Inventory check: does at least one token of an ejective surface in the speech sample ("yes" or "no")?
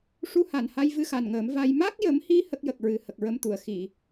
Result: no